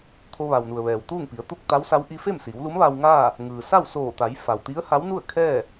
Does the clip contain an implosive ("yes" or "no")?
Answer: no